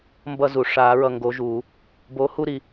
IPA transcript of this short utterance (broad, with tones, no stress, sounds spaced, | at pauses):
m b ʌ˥˧ z u˨˩˦ ʂ aː˨˩˦ ɹ ʌ˨ ŋ ɡ o˨˥ ʒ u˨˩˦ | b oː˨˥ h u˥˧ ɾ i˨